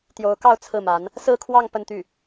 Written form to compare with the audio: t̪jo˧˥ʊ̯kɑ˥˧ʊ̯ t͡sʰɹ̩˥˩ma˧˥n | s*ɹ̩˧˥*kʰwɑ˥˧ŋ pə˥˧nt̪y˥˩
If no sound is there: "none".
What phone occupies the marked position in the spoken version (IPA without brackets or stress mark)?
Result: ɹ̩˥˧